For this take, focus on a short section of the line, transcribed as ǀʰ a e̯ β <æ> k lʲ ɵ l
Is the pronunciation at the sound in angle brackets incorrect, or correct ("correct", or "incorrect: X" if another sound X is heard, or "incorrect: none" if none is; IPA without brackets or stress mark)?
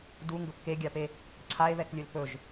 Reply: incorrect: ɛ